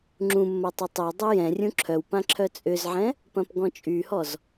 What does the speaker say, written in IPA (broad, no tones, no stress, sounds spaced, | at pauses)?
ŋ͡ǁ ũ mː ɐ tˤ ɪ tˤ ɪ w dˤ ɛ j ɛ̃ rʲ ũ ǁʰ œ w p ã ǁʰ œ t͡sʼ ʏ z ʕ ɛ̃ | p ɐ̃ p ɡ ɔ̃ t͡ʃʼ y h ɔ z